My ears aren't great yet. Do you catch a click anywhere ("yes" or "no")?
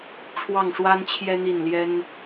no